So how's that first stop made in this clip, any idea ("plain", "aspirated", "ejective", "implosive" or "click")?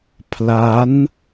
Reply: aspirated